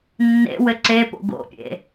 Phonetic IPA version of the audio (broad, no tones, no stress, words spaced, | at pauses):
nːḛwɘ ǀepo̰ ɡo̰pʲḛ